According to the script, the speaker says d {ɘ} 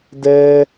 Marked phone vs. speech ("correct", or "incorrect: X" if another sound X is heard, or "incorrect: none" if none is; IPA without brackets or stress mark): incorrect: ɛ